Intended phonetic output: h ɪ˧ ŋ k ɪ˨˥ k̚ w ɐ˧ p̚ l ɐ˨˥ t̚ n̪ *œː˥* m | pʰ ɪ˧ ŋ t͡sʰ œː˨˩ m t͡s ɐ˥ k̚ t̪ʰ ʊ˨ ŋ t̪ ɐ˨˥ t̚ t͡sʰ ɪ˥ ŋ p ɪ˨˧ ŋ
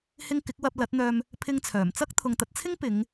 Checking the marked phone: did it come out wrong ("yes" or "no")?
yes